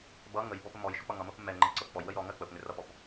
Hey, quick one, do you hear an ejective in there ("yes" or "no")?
no